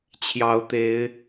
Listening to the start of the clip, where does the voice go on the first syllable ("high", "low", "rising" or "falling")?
rising